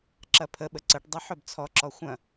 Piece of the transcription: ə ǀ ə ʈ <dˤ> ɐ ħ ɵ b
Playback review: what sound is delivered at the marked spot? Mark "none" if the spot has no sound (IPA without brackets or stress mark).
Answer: dˤ